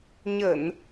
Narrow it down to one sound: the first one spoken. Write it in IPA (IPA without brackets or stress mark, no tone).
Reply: ɲ